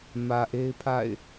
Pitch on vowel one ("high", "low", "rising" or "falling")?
low